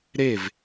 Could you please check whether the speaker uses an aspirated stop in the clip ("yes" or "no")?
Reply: no